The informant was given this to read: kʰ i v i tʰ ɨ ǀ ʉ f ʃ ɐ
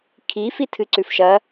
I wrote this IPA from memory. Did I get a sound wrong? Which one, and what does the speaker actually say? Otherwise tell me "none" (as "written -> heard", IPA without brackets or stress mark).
v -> f